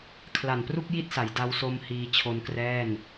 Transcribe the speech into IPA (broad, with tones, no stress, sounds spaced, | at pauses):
kʰ l a˨˩ n p r u˥˩ k̚ j i˥˩ t̚ s a˩˦ j d a˧ w s o˧ m h iː˧ t͡ɕʰ o˧ n k r ɛː˥˩ n